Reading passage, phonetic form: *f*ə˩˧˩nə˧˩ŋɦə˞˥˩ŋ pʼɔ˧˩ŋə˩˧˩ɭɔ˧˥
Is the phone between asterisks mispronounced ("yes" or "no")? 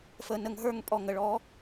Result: no